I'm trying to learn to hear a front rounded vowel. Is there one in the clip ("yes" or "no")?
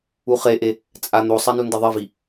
no